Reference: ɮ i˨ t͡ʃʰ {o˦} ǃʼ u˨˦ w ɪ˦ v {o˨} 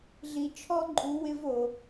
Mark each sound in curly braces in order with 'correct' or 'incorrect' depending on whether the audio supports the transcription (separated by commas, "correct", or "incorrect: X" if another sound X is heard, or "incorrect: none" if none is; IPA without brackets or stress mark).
incorrect: ɔ˦, correct